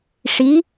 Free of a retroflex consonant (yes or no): no